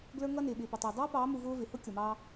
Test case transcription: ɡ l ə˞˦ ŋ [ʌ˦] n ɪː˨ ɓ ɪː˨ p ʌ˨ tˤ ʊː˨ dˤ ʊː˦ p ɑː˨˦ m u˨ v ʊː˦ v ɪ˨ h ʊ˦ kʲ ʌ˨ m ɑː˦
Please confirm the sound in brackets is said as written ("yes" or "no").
yes